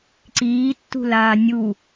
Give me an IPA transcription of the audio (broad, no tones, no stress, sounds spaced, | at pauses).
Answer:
ǀ iː tː ṳ l aː nʲ u